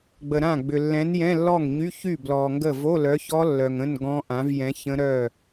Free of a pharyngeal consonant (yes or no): yes